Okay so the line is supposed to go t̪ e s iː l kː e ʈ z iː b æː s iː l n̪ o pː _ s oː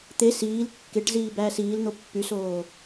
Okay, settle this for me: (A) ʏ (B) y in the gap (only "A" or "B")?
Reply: B